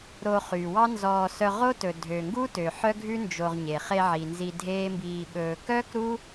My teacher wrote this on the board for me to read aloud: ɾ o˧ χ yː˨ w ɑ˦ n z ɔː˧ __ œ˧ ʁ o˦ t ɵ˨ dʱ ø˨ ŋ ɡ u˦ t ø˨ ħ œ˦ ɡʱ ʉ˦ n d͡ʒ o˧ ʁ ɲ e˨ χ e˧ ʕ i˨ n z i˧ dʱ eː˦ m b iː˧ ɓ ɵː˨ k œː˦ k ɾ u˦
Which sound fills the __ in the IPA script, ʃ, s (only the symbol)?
s